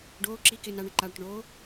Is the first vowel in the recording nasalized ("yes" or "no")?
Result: no